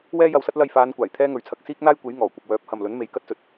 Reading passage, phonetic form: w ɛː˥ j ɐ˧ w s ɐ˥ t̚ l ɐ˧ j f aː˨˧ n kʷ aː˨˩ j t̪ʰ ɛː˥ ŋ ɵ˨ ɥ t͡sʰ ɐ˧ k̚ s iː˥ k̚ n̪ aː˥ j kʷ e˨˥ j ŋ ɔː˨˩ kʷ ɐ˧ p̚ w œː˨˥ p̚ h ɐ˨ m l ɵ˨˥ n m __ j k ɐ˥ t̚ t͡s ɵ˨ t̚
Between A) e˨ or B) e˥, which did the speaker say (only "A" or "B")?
A